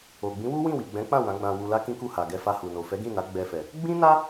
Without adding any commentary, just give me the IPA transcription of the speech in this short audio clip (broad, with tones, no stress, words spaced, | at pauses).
o˨ ɡ͡bĩ˨˦wu˦ wĩ˦˨wi˨ɡ͡bɛ̃˨˦k͡pã˦˨ wã˨˦ɡ͡bã˧ wu˧la˦ kĩ˦ku˦˨ha˨ ɡɛ˧fa˧hu˨no˨ fɛ˨˦ɡĩ˦˨na˨˦ ɡ͡bɛ˧fɛ˨ | ɡ͡bĩ˦na˦